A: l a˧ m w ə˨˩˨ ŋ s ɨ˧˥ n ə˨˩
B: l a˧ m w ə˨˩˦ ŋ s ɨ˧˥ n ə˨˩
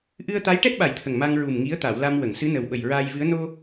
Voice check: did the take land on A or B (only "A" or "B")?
A